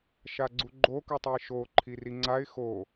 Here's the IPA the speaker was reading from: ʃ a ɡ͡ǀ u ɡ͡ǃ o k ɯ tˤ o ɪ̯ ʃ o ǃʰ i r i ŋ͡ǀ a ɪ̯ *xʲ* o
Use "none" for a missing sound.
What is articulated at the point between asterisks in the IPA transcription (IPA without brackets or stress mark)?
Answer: x